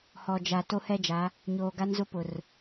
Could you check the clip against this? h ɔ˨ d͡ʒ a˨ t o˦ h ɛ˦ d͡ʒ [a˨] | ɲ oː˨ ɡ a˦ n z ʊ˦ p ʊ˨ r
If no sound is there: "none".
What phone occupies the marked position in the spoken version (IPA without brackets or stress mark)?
a˨˦